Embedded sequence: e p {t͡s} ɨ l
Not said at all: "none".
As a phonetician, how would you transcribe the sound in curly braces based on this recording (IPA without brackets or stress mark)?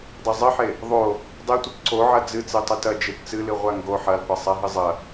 t͡s